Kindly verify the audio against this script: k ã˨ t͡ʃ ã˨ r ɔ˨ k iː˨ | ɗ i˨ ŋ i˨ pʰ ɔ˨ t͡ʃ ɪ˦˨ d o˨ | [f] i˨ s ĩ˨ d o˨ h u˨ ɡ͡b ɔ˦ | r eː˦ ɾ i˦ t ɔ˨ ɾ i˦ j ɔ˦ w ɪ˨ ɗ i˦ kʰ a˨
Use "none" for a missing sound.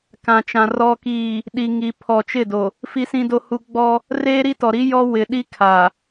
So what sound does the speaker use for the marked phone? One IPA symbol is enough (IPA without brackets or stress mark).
f